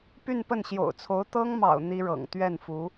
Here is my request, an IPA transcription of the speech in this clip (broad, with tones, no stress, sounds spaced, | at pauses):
p y˥˧ n p ə˥˩ n ɕ j o̰˨˩ ʊ̯ t͡sʰ o˧˥ ʊ̯ t̪ ɤ˥ ŋ m ɑ̰˨˩ ʊ̯ n̪ i˥ ɻ ɤ̰˨˩ ŋ t̪ ɥ ɛ˥˩ n f u˧˥